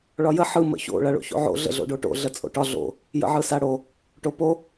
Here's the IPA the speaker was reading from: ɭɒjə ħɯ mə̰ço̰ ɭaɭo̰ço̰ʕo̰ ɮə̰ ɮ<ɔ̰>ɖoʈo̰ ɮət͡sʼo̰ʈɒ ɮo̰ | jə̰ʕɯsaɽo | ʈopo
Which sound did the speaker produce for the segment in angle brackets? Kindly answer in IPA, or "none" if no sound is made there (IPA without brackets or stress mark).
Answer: o̰